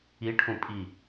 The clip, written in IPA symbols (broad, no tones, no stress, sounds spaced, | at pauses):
i ʈʰ ũ pʼ i